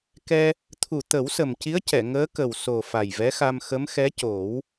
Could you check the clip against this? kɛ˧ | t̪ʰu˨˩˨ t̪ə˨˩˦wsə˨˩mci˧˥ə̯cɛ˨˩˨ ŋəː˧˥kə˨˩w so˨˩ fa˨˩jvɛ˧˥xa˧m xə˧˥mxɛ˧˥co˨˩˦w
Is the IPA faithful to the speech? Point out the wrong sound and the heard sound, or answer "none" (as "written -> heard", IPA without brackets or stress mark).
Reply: none